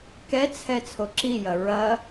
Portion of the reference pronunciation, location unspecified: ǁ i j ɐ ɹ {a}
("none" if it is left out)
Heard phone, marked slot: ɐ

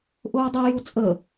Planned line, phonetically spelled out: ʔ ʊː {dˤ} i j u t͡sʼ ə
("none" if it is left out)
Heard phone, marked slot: dˤ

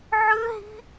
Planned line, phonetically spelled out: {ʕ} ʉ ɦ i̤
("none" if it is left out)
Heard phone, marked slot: ʕ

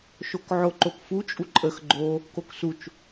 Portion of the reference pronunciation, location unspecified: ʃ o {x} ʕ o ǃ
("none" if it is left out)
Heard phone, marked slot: k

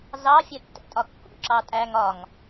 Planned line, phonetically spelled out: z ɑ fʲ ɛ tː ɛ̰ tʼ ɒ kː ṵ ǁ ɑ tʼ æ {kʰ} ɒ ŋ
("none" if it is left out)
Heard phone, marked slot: ŋ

